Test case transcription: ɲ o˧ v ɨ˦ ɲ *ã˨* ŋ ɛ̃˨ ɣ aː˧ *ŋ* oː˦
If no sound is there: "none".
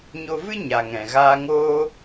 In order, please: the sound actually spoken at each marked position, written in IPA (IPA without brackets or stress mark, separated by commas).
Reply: a˨, ŋ